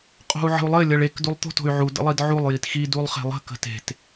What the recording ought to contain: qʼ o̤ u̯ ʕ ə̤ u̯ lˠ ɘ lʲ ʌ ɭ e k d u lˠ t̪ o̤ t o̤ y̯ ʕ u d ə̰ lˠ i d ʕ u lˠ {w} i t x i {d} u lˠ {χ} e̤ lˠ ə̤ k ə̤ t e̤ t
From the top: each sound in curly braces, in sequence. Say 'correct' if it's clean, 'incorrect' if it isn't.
incorrect: j, correct, correct

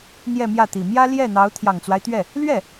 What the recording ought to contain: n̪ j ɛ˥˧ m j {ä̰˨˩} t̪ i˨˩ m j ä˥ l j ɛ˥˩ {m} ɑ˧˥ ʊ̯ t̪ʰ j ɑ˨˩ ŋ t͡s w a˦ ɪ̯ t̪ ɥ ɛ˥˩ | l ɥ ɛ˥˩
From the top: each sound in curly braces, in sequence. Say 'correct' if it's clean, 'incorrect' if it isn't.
incorrect: ä˥˩, incorrect: n̪

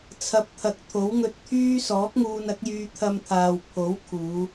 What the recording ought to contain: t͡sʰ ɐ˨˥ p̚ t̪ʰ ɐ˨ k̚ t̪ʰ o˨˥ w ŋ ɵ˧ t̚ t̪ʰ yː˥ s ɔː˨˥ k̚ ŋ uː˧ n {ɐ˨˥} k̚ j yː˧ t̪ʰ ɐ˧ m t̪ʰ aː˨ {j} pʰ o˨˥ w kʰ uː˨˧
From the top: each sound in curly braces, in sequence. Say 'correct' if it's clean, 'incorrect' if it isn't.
correct, incorrect: w

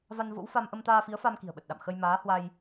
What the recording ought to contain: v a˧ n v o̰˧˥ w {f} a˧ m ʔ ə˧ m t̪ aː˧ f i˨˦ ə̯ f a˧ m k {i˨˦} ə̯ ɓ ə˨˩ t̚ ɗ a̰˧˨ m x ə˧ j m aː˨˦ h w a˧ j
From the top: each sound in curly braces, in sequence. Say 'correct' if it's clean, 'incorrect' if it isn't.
correct, incorrect: i̤˨˩

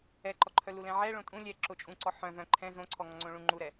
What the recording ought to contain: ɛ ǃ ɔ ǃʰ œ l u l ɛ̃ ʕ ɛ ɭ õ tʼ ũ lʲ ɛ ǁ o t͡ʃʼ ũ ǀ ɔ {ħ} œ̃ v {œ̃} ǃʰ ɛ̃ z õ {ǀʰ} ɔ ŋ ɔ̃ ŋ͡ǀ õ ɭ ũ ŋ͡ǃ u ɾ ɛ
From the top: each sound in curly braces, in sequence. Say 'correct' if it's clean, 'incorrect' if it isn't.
correct, correct, correct

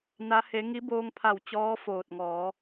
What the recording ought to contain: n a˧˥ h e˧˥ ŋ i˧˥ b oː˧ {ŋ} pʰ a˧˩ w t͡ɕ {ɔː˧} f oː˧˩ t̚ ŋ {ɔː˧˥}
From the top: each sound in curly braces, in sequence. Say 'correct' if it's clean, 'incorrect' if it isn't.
correct, incorrect: ɔː˧˥, incorrect: ɔː˩˧

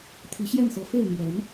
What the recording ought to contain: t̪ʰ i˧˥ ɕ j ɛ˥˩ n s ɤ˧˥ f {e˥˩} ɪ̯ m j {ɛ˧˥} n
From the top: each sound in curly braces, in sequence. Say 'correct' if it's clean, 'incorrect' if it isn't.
correct, correct

